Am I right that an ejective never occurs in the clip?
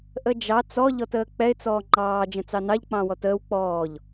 yes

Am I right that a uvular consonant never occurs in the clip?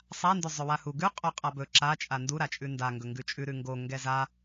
no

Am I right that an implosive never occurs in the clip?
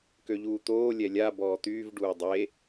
yes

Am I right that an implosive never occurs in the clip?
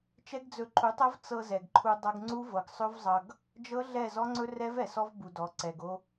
yes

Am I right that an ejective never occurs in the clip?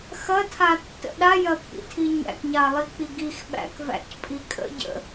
no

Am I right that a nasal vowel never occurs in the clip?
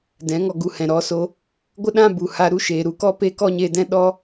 no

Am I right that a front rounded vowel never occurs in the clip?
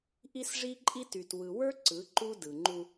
no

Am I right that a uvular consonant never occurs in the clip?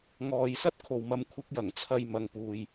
yes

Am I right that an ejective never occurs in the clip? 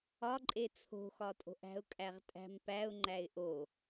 no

